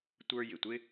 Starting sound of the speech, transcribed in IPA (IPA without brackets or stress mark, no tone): tʷ